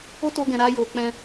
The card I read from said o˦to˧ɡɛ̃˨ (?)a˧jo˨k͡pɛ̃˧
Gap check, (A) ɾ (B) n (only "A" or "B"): A